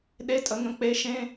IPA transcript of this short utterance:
ɗ e˧˥˧ tʼ ə˩˥ ŋ ə̃˩˥ k͡p e˧˥ ʃ ẽ˧˥˧

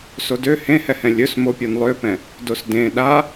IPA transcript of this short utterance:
s o d ø h ẽ h ɛ h ɛ̃ lʲ ɵ s m o pʲ ɔ n lˠ ø p ɛ̃ | d o s d ẽ ɗ a

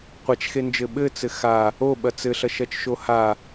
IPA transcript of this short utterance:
qʷ a t͡ʃ x e n d͡ʒ ɘ ɓ ɘ t͡s ɘ x a | o ɓ ɐ t͡s ɘ ɬ ɐ ʃ ɐ t͡ʃ ʃ o h a

